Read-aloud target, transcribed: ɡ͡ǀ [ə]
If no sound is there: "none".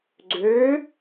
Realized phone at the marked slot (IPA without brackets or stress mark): ø